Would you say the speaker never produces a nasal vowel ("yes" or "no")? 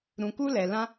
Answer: no